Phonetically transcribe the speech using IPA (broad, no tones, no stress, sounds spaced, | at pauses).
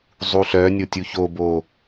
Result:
zˤ u ɬ œ nʲ o tʲ u ç o b o